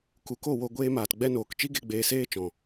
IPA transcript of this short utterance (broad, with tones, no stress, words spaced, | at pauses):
ku˨ko˦˨wo˧ ɡʷeː˦maː˧t ɡ͡bɛ˧noː˨kt͡ʃi˦ɡe˧ ɡ͡beː˧seː˦t͡ʃɔ̃˨